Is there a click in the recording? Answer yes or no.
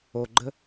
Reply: yes